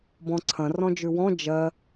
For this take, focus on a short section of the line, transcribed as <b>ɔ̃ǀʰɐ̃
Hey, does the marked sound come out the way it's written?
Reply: yes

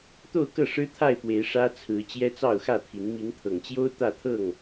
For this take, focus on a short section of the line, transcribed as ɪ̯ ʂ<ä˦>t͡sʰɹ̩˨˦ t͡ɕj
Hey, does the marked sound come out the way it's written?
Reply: yes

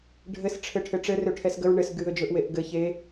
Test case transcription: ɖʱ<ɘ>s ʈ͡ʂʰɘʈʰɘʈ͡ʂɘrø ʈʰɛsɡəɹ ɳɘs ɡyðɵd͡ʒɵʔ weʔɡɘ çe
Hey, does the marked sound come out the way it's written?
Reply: yes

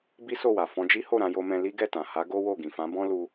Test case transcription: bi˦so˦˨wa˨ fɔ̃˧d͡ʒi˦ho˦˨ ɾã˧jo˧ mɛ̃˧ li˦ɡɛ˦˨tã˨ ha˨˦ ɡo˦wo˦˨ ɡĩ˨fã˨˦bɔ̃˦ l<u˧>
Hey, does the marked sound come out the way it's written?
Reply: yes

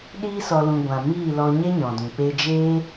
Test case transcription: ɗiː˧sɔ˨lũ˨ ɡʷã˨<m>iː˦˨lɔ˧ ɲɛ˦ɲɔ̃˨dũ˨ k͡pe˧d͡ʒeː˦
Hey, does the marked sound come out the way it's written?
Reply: yes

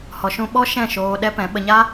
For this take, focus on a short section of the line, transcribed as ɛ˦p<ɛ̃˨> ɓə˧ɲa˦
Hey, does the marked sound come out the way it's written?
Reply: no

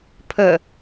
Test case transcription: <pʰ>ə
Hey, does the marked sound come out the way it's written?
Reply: yes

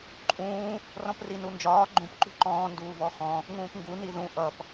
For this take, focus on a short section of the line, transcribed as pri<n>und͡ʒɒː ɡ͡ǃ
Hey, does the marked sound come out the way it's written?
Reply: yes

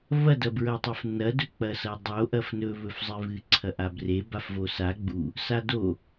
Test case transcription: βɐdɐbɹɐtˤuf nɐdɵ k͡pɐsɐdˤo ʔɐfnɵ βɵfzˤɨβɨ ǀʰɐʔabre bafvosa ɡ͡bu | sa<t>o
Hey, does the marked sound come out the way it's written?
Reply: no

